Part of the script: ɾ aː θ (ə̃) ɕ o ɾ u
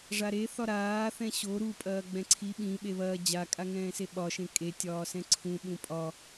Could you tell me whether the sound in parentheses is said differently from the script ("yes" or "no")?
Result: yes